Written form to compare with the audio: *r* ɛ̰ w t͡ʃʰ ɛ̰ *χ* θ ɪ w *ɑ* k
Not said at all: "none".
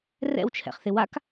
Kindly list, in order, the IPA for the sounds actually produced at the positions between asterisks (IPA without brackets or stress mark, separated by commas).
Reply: r, χ, a